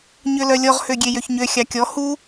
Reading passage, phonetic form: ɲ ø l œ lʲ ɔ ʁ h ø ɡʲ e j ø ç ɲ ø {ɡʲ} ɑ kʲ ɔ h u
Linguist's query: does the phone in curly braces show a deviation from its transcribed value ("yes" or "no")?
yes